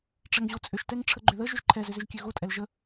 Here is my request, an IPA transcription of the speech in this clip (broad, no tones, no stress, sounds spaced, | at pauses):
ʈ͡ʂ ɛ ŋ ʑ o t͡sʼ ʏ ʃ t ɛ ŋ ʈ͡ʂʰ ə ɡ͡ǃ ʏ ð ə ʒ ʏ ʒ ǃʰ ɛ z ʏ z ʏ ʒ kʲ ø ɣ o tʼ ɛ l ʒ ə